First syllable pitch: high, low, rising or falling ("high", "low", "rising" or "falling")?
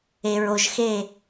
low